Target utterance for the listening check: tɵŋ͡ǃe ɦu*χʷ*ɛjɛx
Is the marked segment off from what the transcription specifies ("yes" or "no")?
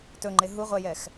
yes